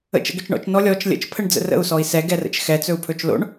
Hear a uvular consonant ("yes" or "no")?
no